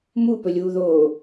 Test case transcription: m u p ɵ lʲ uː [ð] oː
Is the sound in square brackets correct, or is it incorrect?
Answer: correct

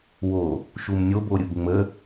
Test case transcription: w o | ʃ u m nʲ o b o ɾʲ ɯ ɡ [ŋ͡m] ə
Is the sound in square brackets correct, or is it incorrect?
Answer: correct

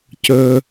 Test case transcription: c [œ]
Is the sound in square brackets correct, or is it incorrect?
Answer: correct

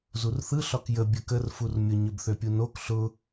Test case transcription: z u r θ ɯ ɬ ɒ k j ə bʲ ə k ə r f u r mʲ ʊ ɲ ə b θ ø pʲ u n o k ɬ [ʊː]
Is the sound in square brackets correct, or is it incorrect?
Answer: incorrect: ʊ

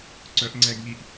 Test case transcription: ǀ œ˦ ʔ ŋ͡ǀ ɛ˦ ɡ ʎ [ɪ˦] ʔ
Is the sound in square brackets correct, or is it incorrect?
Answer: incorrect: i˦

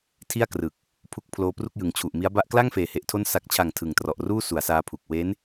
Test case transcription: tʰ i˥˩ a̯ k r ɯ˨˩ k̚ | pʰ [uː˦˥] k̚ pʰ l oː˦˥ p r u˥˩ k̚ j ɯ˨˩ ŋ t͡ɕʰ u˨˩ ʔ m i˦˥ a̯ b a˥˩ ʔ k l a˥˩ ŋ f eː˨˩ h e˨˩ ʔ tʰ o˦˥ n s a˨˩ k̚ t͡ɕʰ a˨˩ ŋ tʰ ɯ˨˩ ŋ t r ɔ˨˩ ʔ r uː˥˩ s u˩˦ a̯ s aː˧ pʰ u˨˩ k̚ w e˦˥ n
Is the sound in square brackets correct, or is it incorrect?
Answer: incorrect: u˦˥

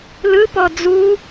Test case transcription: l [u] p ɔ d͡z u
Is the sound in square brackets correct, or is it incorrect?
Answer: incorrect: ɯ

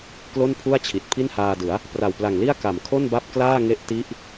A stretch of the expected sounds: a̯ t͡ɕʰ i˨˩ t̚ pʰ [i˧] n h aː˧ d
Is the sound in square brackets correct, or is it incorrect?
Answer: incorrect: i˥˩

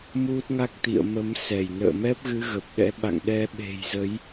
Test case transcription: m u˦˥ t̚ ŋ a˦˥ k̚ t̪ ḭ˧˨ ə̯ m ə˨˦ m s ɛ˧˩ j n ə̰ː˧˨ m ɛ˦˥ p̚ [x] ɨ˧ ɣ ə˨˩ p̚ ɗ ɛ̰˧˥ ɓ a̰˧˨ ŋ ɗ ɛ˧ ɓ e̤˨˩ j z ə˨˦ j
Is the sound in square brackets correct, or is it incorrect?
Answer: incorrect: ɣ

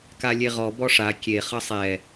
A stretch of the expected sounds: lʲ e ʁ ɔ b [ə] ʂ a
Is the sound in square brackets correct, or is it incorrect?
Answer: incorrect: ɔ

